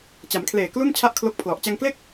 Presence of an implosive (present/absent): absent